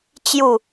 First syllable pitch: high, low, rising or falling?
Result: falling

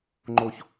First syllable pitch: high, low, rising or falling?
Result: high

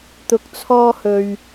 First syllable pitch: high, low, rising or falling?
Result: rising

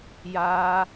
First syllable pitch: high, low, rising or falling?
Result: high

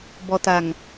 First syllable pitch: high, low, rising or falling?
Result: low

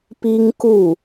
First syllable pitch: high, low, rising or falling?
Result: high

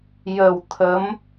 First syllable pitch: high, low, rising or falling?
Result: low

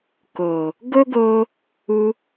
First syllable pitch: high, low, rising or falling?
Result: low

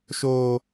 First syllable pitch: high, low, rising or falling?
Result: high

